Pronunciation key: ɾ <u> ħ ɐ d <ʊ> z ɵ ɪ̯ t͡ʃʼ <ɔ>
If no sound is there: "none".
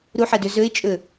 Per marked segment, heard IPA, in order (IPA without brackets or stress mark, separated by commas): u, ɵ, ɵ